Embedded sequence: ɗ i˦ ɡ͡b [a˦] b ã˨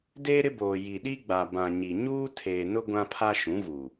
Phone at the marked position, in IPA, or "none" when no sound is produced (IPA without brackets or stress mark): a˨